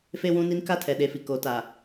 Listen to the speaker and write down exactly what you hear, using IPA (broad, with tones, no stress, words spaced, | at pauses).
fe˦wũ˦ni˦n ka˦tʰɛ˨ɗe˨fi˨ ko˨˦ta˨